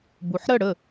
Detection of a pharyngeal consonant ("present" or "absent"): present